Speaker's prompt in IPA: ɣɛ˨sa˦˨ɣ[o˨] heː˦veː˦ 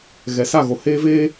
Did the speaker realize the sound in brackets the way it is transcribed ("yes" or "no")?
yes